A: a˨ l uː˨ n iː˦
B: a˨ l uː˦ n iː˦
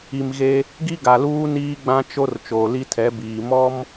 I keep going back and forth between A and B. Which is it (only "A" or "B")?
B